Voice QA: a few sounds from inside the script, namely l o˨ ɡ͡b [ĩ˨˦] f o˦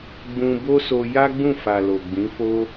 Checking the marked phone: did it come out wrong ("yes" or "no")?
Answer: no